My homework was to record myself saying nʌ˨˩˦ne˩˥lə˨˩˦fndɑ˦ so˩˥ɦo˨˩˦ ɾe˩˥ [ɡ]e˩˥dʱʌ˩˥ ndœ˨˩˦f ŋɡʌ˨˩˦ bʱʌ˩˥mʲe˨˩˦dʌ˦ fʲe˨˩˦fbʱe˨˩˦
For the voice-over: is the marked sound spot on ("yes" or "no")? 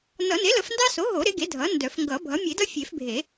yes